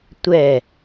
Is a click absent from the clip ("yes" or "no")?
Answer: yes